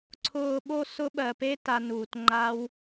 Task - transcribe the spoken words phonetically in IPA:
ǀʰ ʊː˧ ɓ o˧ s ʊ˦ ɓ ɜ˧ p e˦ t a˧ n uː˧ t ŋ͡ǃ a˦ w

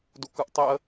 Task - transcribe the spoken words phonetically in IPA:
d u k ɯ ʔ tˤ i ə̯

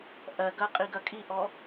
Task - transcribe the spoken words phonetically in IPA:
ʔ ɜ ɡ ɐ qʼ i ɡ ɐ kʼ i ʔ ɔ

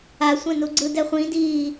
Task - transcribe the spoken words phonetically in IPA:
a sʷ ɛ̃ n u ɡ͡ǀ ɯ d ɛ χʷ ĩ d iː

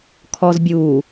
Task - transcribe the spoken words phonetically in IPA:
kʰ ɔ z bʲ uː

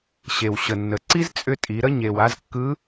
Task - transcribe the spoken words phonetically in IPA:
ɕ e˩ w ɕ ə˩ nː ə˩ ǀ i˥ z t͡sʼ ʏ˧ tʼ i˩˧ ɾ ə˧ ɲ e˩ w a˧ z kː ɯ˧˥

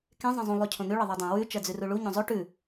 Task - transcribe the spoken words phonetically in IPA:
k ẽ zˤ ẽ zˤ ũ lˠ ʉ cʰ õ n̪ ʉ ɭ ɪ ðˤ ɜ dˤ ẽ w ʉ t͡ʃ ɜ d͡z ʉ r u ɭ u ɲ õ zˤ o ʈ ʉ

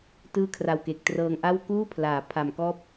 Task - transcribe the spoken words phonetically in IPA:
t ɯː˥˩ kʰ r a˧ w k e˨˩ k̚ t r ɤː˧ ŋ ʔ a˥˩ w k uː˥˩ pʰ l aː˩˦ pʰ a˨˩ m k ɔː˥˩ p̚

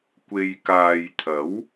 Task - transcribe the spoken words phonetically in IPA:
kʷ e˨ j k aː˨ j t̪ʰ ɐ˨˥ w

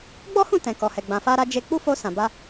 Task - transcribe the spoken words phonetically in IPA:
ɡ͡b ɔ˦ h ũ˦˨ t ɛ̃˨ k ɔ˨ h ɛ˨ ɡ͡b ã˨ f a˧ ɾ a˧ d͡ʒ e˦ k͡p u˦ f o˧ s ã˨ b a˧

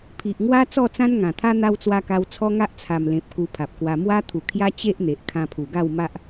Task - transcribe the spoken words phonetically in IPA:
pʰ i˨ ʔ ŋ w a˦ t͡s ɔ˥˧ t͡s ã˦ n ŋ ã˨˩ t̪ʰ a˦ n̪ a˧ w t͡s w a˧ k a˧ w t͡sʰ ɔ˦ ŋ a˦ ʔ t͡sʰ a˨˩ m l ẽ˨ p̚ k u˧ pʰ a˨ p̚ k w a˧ m w a˦ t̪ʰ u˨˩ kʰ j a˦ t͡ɕ e˦ ʔ n̪ e˨ ʔ kʰ ã˧ pʰ u˨˩ ɡ a˥˧ w m a˦ ʔ

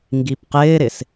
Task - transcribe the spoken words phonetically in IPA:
ŋ ɡ i p q ɪː ɾ ɪ s

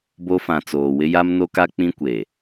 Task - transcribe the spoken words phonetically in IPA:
b o˦ f ã˨ t͡s oː˨ w ɪ˦ j a˦ m n o˦ k a˦ k͡p ĩ˦ kʷ e˨

